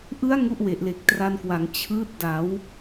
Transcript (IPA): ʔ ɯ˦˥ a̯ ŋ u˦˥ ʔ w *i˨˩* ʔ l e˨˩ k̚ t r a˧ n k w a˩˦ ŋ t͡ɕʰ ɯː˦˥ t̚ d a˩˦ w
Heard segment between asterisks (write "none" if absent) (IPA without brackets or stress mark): e˨˩